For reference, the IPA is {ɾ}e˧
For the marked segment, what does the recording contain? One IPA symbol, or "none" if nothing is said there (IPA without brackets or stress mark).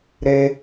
ɾ